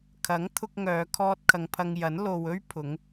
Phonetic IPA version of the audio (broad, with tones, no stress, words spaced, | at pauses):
kʰɐ˨˥ŋ t̪ʰʊ˥k̚ŋœː˨˧kʰɔː˥t̚ kʰɐ˨˧ŋpʰɐ˧ŋjɐ˨˥n lo˨wɵ˥ɥ pʰʊ˨˥ŋ